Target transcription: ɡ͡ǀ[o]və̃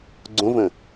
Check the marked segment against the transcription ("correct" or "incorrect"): incorrect